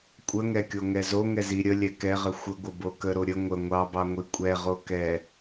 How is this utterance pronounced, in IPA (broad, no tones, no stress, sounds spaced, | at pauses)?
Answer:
kʷʼ ə ŋ ɛ kʲ o ŋ ɛ z o ŋ ɛ z i ɾʲ ə lʲ ɛ k ɛ ʁ ə xʷ ə ɡʷ ə b o k ə ɾ o ɾʲ ə ŋʷ ə ŋʷ ɑ b ɑ ŋʷ i kʷʼ ɛ ʁ o k ɛ